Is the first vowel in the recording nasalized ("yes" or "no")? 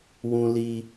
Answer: yes